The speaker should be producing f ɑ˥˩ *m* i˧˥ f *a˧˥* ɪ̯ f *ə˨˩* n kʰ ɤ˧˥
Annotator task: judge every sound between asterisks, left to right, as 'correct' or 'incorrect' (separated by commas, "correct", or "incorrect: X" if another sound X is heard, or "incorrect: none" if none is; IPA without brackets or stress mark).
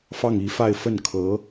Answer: incorrect: ŋ, incorrect: a˥˧, incorrect: ə˥˩